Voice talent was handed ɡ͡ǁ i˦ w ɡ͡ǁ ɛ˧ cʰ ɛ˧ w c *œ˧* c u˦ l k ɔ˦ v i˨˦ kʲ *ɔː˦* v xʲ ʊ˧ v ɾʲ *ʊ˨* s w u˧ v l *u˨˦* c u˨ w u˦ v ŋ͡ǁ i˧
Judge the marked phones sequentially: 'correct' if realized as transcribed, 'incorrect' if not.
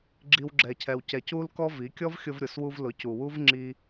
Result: incorrect: ɛ˧, incorrect: ɔ˦, correct, incorrect: ʊ˨˦

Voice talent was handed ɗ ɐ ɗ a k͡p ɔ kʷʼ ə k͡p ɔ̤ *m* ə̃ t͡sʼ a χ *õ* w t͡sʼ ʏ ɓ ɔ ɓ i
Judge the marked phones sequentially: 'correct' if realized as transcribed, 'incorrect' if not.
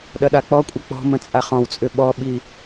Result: correct, incorrect: ɔ̃

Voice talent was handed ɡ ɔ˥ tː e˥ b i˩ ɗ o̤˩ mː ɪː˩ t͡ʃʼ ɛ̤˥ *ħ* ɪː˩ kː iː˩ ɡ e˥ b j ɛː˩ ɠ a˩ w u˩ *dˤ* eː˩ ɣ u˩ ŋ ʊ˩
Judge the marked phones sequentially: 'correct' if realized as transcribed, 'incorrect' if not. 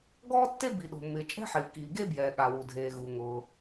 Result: correct, incorrect: dʱ

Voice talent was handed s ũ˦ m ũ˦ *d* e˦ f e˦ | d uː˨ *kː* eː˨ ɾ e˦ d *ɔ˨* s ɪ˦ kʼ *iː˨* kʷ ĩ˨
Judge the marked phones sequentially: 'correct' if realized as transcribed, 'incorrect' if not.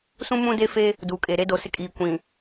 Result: correct, incorrect: kʼ, incorrect: o˨, correct

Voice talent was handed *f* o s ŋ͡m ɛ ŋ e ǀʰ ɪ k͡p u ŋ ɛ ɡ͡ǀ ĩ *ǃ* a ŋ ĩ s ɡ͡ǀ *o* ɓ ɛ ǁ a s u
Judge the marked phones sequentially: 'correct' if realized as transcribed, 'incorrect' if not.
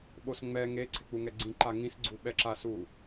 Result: incorrect: ɓ, correct, incorrect: u

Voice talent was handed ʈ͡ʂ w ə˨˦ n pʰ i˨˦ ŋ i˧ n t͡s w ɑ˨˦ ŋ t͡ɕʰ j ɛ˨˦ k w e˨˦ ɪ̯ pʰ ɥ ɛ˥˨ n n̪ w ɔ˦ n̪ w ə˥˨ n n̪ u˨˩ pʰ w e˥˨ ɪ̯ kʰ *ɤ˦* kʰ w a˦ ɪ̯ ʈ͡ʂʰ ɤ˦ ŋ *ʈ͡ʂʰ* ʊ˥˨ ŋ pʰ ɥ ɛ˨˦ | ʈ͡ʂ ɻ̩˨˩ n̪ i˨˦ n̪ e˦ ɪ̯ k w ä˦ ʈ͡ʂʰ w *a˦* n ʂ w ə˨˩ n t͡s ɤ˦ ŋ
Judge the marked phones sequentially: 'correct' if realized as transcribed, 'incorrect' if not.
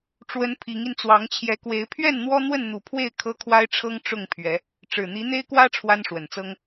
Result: correct, incorrect: ʈ͡ʂ, correct

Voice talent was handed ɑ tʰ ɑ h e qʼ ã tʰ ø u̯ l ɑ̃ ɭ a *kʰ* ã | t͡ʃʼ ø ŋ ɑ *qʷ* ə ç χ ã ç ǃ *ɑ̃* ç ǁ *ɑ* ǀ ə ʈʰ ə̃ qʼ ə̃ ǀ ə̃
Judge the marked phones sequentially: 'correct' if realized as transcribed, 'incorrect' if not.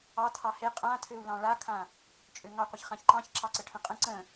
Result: correct, correct, correct, correct

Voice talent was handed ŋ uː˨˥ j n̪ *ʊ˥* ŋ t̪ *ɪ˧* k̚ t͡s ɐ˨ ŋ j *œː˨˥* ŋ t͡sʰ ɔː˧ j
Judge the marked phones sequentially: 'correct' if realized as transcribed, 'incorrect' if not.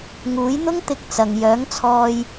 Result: correct, correct, correct

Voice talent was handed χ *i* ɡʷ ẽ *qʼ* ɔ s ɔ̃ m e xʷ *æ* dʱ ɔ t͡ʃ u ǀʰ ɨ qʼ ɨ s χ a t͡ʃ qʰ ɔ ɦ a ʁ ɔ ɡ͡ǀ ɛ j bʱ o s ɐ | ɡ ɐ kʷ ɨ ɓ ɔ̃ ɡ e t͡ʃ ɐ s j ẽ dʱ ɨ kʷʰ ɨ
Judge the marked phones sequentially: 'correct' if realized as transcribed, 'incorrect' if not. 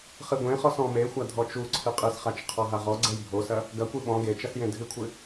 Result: incorrect: ɨ, incorrect: χ, incorrect: a

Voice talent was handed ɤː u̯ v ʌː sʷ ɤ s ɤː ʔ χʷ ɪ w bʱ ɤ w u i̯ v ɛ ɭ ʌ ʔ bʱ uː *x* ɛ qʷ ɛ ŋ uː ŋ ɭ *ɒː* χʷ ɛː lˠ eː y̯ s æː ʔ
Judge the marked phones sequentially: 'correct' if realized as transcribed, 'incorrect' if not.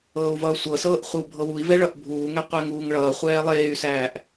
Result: incorrect: ŋ, incorrect: ʌː

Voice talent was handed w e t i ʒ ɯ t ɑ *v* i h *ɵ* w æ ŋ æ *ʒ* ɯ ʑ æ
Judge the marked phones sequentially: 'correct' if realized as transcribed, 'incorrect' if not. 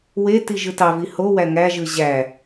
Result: correct, incorrect: o, correct

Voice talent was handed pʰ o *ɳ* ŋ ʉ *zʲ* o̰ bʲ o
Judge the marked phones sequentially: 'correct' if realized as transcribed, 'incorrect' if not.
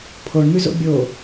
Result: correct, incorrect: z

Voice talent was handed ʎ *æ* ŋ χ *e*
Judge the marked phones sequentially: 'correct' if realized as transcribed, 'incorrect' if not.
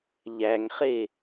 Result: correct, correct

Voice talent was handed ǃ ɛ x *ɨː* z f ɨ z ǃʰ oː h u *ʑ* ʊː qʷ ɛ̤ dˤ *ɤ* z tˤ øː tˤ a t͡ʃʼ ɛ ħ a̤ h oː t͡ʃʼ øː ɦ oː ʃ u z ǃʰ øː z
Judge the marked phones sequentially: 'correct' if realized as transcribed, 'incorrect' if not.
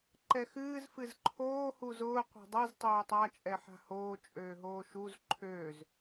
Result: correct, incorrect: z, correct

